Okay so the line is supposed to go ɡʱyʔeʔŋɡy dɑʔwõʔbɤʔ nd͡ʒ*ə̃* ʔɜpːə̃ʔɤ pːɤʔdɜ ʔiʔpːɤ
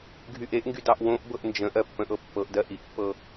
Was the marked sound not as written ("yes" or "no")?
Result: no